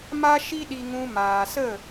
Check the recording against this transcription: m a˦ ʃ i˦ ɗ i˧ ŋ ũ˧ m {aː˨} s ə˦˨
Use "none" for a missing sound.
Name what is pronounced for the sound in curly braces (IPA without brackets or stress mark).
aː˨